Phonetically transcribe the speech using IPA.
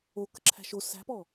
o k ə̤ ǁʰ æ̤ ʃ o s æ̤ p ɔː

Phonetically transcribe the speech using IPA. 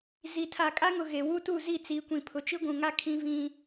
z i˨ tʰ a˨ kʼ a˦ ŋ ʊ˨ ɣ e˨ w u˦ t u˦˨ z i˦˨ t͡s i˨˦ kʷ ĩ˨ pʰ ʊ˨ t͡ʃ i˦ ɡʷ ũ˨ ŋ a˦ kʰ ĩ˦ v ĩ˦

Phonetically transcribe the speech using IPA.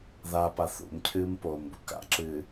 ð a p a θ ṵ m cʰ ɨː m p oː m b u k a̰ ǁ ɨː

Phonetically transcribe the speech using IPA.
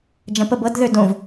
d͡ʒ ɐ̃ p ə b ɤ d ð ø d õ v

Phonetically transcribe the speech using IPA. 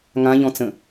ŋ ã ʎ ɔ̃ t͡s ə̃

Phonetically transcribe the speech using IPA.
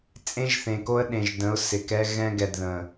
t͡sʼ ẽ˦ ʒ θ ẽ˨ k o˦ ə̯ ɗ ẽ˨ ʒ d ə̃˨˦ ʊ̯ s ɪ˨ k ɛ˦ ɣ ɛ̃˦ ɡ ɛ˨ d ð ə̃˨

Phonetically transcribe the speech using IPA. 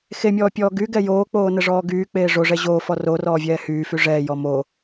x e mʲ ɔː pʲ ɔː ɡ y ɡ ɛ j oː k͡p oː n ə ʐ ɔː ɡ yː k͡p eː ʐ o ʐ ɛ ʑ oː f ɔ r o r ɔː vʲ ɛː h yː f y ʐ ɛː j ɔ m o

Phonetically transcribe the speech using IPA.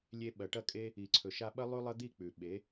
lʲ e˧ ɓ ɐ˨ ʈ ɐ˦˨ kʼ e˦ | i˨ ǀʰ ɵ˨ ʃ a˧ ɓ ɐ˦ lˠ ʉ˦ lˠ ɐ˦ d̪ i˦˨ k͡p ʉ˨ ɓ e˨˦

